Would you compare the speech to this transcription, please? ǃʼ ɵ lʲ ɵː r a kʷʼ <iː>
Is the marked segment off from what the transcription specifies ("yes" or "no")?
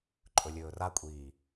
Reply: no